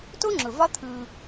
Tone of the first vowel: high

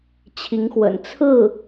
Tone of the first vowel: rising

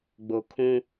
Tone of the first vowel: low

